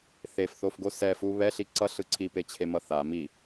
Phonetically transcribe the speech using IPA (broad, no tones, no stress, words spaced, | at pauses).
θefθofɡo sɛfu βɛɬi ǀʌɬɯ ǀʰipet͡ɕʰemʌ θa mi